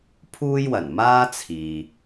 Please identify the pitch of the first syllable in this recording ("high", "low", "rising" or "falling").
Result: high